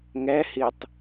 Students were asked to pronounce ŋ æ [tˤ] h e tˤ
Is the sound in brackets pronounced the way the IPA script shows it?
no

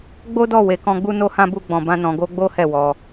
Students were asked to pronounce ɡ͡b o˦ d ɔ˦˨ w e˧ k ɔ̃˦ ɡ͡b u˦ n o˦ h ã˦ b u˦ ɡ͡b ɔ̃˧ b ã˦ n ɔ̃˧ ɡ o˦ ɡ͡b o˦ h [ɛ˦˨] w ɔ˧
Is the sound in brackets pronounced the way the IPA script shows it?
yes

